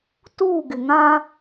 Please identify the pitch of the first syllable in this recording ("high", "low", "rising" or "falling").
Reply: falling